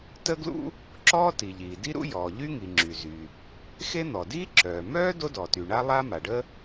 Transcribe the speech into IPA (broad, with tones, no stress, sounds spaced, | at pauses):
t ə˥ ɡ l ṵ˥ | ǁ ɔː˥ t i˩ ʎ iː˩ d i˥ ɾ ṵ˥ j ɔː˩ ʎ y˥ ŋ i˩ ŋ͡ǁ y˩ z y˩ | x e˥ n̪ ɔ˩ d iː˥ ǁ œː˩ m œː˥ d o˥ d ɔ˩ t y˩ ɳ a˥ lˠ a˥ m a˩ ɖ ə˥